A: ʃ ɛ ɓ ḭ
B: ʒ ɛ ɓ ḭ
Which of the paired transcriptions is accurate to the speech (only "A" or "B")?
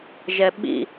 B